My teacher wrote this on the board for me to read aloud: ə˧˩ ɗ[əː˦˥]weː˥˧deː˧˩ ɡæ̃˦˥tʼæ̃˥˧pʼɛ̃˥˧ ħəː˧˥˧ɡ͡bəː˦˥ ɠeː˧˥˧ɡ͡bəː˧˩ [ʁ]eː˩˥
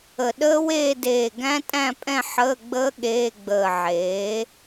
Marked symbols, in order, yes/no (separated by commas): yes, no